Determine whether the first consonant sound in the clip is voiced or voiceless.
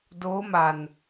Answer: voiced